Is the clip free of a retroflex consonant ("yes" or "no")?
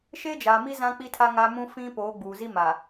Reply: yes